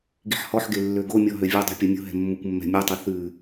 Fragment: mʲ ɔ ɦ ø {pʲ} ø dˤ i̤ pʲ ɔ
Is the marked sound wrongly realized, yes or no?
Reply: yes